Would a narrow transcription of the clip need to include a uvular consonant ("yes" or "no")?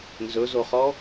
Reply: yes